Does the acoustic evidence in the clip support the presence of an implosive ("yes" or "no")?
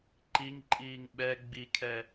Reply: yes